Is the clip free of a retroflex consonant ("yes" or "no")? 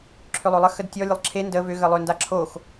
yes